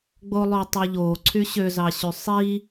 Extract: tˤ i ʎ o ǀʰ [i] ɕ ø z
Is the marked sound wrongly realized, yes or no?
yes